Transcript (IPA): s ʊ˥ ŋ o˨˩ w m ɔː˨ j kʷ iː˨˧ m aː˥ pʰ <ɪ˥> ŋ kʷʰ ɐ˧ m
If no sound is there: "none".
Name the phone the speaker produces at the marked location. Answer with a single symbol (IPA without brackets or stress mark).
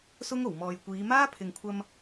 ɪ˨